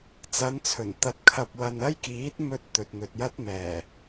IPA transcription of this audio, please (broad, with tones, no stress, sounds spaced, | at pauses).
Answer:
t͡s ɐ˨˧ n t͡sʰ ɵ˨˩ n t̪ ɐ˧ t̚ kʰ ɐ˧ p̚ w ɐ˧ n ɐ˥ j k iː˨˥ t̚ m ɵ˧ t̚ t̪ ɵ˨ t̚ n̪ ɵ˨ t̚ j ɐ˥ t̚ m ɛː˨˩